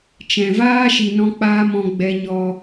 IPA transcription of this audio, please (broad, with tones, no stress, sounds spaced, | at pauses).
t͡ʃ ɛ̃˨ v aː˦ ʃ i˧ n ɔ̃˦ k͡p aː˦ m ɔ̃˧ ɡ͡b ɛ˧ ɲ ɔ˧